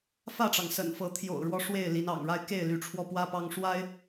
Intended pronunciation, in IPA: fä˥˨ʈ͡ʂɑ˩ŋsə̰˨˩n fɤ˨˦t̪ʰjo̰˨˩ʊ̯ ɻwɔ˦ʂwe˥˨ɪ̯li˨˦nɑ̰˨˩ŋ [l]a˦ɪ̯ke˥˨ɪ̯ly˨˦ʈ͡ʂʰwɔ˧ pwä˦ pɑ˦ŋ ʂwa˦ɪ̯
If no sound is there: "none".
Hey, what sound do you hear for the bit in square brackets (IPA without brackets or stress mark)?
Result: ɻ